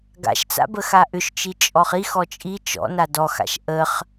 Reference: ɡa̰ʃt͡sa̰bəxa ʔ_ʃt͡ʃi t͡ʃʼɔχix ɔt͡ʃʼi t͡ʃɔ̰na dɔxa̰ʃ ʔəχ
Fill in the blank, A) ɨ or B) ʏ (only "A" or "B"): B